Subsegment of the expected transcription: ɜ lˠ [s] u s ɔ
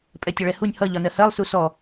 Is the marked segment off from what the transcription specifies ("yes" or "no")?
no